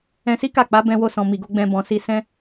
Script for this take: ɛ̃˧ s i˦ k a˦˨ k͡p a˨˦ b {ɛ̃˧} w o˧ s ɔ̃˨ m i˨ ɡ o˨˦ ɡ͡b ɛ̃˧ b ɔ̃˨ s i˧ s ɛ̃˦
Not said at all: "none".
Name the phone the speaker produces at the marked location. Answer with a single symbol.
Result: ɛ̃˧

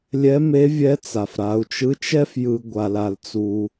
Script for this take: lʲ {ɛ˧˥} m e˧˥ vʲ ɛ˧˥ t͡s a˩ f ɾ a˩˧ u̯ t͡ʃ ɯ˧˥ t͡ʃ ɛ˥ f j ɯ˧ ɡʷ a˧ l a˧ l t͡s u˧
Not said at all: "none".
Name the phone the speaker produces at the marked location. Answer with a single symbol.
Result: ɛ˧˥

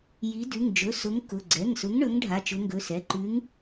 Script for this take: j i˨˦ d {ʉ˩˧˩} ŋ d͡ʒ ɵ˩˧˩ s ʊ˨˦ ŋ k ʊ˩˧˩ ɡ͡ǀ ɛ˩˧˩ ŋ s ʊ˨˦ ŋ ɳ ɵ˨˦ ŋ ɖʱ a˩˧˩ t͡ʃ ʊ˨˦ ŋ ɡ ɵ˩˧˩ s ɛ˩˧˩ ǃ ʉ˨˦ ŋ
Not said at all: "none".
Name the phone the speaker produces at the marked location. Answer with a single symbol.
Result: ʉ˩˧˩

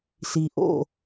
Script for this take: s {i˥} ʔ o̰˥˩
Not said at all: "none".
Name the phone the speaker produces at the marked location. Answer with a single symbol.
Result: i˩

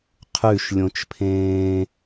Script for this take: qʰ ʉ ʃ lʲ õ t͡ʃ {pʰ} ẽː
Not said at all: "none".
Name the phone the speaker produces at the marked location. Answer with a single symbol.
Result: pʰ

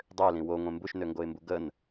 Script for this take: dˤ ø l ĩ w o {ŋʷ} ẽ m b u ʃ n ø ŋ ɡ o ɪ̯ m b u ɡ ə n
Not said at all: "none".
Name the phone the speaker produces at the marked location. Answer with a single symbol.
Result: ŋʷ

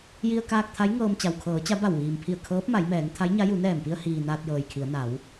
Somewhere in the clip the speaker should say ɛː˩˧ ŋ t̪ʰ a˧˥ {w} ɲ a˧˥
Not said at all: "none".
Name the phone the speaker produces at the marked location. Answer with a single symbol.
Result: j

